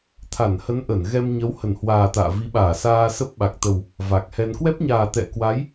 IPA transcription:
t̪ʰ a˧˩ n h ə˨˦ n ʔ ə˧˩ n ɣ ɛ˧ m ɲ ə˨˦ w h ə˧˩ n h w aː˨˩ t̪ a̰ː˧˨ v i˨˦ ɓ aː˧˩ s aː˧ s ə˦˥ p̚ ɓ a˨˩ k̚ t̪ ə˨˩ w | v a˨˩ k̚ h ɛ˧ n k w ɛ˦˥ p̚ ɲ aː˨˩ t̪ ɛ̰˧˨ k w a˨˦ j

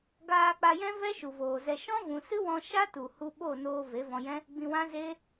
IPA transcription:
ɡ aː˧ k͡p a˧ j ɛ̃˦ v ɛ˦ ʃ u˨ v oː˨ z ɛ˧ ʃ ɔ̃˦ v ũ˨ s ɨ˦ w ɔ̃˧ ʃ a˦ t u˨ h u˧ ɓ o˦˨ n oː˧ v e˨˦ v ɔ̃˧ j ɛ̃˦ | ɡ͡b ĩ˧ w ã˦ z eː˦

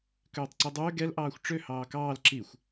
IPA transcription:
k øː tˤ ǀ i dˤ øː ɡ ɛ l ʔ ɑː xʷ ʈ͡ʂ ø h ɑː k ɑː l ǁ i xʷ

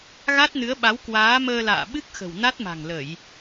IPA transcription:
ɣ a˦˥ t̚ n ɨ˨˦ ə̯ ɓ a˨˦ w k w aː˨˦ m əː˧ l a̰ː˧˨ ɓ ɨ˦˥ k̚ x ə̤˨˩ w n a˦˥ t̚ m a̤˨˩ ŋ l ə˧˩˨ j

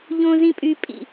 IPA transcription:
ʎ õː˥ z ĩ˥ pʼ yː˥ pʼ ḭ˥˧

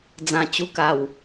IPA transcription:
d͡z ã˨˩ t͡ɕ u˧ k a˨˩ w

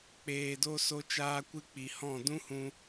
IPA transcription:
k͡p eː˨ d o˧ s o˧ t͡ʃ aː˧ kʷ ɨ˧ k͡p i˨ h ɔ̃˦˨ d ũ˦ h ũ˧

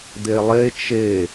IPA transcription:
d̪ e lˠ e t͡ʃ e

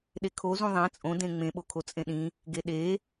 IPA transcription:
ɗ e kʰ o z ũ ðˤ æ̃ t͡sʼ õ d ẽ ŋ͡m ẽ ɓ o kʰ o t͡sʼ ẽ ɗ ĩ | ɡ e ɗ e

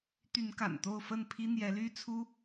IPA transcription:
t̪ y˨˦ n k a̰˨˩ n t̪ o˥˨ ʊ̯ f ə˥˨ n pʰ i˦ n̪ j ɛ˨˦ l y˦ t͡sʰ u˦

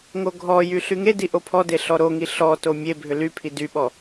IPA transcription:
ŋ o ɡʱ ɔ j y ɬ y ŋ e d i ʔ o pʰ ɔ d e ɬ ɔ ɾ o ŋ i ɬ ɔ t o mʲ e bʱ ʏ l y pʰ i d y ɓ ɔ

